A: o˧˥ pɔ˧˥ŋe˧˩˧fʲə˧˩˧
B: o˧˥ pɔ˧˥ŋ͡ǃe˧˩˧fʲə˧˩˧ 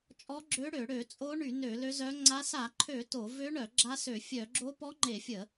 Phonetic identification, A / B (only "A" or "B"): B